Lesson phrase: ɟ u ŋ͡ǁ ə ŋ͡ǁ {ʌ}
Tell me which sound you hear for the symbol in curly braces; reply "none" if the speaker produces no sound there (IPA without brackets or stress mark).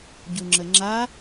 a